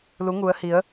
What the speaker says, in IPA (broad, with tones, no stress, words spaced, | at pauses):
lu˨˦ŋu˨˦ə̯hi˨˦ə̯